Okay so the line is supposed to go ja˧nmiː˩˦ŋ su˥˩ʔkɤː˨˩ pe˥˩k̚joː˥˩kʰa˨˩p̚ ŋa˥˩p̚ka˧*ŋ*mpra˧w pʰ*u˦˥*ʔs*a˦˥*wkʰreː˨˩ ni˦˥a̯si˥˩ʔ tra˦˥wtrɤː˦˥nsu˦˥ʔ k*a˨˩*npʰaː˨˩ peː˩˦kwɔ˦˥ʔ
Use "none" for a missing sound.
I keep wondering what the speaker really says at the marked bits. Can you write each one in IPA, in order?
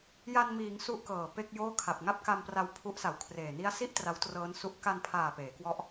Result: none, u˦˥, a˨˩, a˧

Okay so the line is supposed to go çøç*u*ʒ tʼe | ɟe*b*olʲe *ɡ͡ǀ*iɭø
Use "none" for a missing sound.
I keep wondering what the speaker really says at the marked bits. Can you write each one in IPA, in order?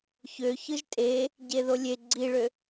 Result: ɯ, ð, ɡ͡ǀ

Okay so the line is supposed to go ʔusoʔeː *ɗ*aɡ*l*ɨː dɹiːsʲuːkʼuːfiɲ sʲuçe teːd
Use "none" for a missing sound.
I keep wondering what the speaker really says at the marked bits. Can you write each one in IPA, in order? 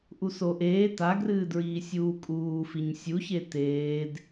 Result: t, r

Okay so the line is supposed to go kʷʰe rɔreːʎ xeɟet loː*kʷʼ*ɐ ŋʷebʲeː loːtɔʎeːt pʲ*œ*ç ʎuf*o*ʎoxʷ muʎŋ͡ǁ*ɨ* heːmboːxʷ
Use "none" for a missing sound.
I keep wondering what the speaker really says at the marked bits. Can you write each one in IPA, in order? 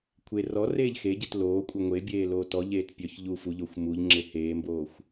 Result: kʷʼ, œ, u, e

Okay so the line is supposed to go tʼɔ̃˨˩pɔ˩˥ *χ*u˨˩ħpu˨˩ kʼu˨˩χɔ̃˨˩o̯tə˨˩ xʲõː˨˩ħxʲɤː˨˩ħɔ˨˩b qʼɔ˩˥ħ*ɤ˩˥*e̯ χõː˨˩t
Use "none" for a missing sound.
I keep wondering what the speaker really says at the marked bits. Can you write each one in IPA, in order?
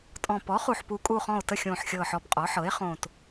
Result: χ, ɤ˩˥

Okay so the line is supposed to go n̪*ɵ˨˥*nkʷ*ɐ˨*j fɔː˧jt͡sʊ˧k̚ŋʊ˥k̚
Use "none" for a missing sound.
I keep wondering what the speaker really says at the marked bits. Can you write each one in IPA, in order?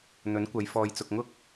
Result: ɵ˨˥, ɐ˨˧

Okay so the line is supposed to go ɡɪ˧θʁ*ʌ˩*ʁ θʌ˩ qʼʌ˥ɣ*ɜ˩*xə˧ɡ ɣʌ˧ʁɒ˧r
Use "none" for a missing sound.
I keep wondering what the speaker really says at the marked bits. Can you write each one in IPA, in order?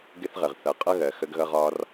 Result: ə˩, ɜ˩

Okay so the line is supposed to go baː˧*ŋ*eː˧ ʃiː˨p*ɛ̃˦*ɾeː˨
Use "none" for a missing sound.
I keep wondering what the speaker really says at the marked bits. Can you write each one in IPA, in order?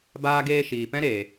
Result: ɡ, ɛ̃˦

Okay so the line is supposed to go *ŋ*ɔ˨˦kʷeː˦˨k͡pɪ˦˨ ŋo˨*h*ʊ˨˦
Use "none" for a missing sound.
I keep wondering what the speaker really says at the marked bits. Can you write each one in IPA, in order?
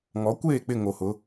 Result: ŋ, h

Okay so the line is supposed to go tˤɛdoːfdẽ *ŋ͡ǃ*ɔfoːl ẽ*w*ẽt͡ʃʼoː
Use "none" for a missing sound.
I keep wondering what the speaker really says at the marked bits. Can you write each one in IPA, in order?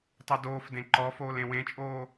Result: ǃ, w

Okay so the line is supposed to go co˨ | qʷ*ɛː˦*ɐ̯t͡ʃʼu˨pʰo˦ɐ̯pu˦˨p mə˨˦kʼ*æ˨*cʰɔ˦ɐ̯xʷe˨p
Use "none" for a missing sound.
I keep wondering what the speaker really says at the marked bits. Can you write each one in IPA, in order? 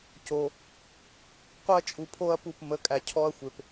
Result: ɛ˦, æ˨

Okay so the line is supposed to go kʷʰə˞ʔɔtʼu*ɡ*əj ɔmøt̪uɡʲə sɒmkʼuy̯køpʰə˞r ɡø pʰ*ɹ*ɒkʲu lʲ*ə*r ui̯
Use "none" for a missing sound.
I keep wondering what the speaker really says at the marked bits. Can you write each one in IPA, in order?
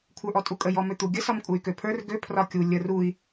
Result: kʼ, r, ə

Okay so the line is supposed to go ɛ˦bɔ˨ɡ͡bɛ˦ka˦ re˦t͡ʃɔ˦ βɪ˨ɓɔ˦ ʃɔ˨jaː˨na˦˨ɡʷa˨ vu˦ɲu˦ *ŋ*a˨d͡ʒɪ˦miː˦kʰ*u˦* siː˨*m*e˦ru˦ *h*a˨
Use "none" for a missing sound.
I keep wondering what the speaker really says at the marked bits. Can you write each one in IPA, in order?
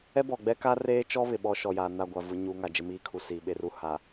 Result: ŋ, u˨, ɓ, h

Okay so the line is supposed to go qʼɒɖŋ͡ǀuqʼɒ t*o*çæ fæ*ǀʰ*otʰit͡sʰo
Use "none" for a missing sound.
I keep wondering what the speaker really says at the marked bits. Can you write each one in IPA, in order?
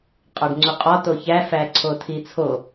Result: o, ǀʰ

